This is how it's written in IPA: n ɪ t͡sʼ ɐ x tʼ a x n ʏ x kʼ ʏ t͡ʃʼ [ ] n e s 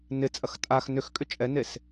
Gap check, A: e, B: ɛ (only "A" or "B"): B